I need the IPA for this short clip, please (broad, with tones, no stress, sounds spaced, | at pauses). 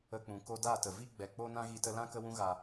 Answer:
ə˨ k͡p ũ˨ k o˦ d a˦˨ t ə˨ v i˦ ɡ͡b ɛ˨ k͡p o˦ n ã˦ ɣ i˧ t ə˧ l ã˦ k ə˦ w ũ˦ ɣ a˨